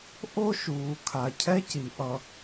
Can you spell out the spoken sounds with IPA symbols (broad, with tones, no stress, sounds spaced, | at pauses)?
ʔ o˦ ʃ uː˨ kʰ a˨ cʰ ɛ˦ c i˨ ʔ ʌ˨